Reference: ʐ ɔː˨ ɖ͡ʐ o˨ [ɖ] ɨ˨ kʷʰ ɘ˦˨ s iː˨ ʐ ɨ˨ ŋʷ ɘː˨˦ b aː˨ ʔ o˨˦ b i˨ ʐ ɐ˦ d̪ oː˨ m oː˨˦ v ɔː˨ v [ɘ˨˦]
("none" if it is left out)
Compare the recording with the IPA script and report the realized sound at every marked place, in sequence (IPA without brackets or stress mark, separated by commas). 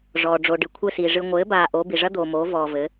ɖ, ɘ˨˦